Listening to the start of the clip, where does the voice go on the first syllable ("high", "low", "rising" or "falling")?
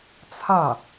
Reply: falling